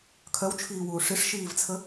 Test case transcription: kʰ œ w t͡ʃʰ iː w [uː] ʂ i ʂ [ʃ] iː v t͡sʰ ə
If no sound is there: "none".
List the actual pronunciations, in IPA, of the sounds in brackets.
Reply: uː, ʃ

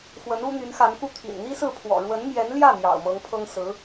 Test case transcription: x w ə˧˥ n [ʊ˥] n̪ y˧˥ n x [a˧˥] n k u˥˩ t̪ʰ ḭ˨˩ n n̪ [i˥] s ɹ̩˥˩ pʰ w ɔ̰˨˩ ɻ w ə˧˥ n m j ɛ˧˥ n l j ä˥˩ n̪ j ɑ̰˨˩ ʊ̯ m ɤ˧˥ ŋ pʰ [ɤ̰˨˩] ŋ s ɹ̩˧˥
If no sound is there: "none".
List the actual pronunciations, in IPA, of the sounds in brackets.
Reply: u˥, a˧˥, i˥, ɤ˥

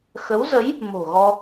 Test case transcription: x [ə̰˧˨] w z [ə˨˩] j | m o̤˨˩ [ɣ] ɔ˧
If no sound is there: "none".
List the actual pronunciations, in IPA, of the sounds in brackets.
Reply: ə˨˦, ə˨˦, ɣ

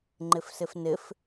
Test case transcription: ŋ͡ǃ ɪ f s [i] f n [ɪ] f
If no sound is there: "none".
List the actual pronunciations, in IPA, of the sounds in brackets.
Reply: ɪ, ɪ

